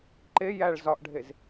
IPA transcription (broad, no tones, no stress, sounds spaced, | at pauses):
ǃ e j æ ɭ z ɒ ʔ ɖʱ e z